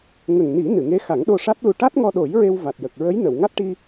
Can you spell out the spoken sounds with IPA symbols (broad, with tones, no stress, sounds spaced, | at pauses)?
ŋ ə˨˩ ŋ n i˨˩˦ n ɨ˨˩˨ ŋ e˧˥ x a˨˩˦ ŋ ɗ o˧ ʂ a˦˥ t̚ l u˧ ʈ a˦˥ t̚ ŋ ɔ˧ ɗ o˨˩˦ j ɹ e˧ w v a˨˩ t̚ j ə˨˩ k̚ ɹ ə˧˥ j n ə˨˩˨ w ŋ a˦˥ t̚ ʈ i˧